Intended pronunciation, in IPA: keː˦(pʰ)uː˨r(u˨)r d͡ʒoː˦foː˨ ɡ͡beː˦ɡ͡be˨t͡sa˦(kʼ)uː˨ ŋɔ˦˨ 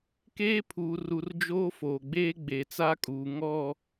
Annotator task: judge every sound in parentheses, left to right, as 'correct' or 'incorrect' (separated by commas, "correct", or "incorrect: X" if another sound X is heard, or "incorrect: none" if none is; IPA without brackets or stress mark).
correct, correct, correct